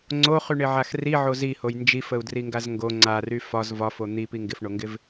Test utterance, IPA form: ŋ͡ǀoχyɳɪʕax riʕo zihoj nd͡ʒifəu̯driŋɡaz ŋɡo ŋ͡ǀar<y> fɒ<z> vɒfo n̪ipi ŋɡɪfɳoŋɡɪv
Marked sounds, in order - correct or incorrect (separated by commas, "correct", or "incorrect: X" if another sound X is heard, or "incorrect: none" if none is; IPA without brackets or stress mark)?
correct, correct